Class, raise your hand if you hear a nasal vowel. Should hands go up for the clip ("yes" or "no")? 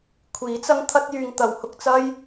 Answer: no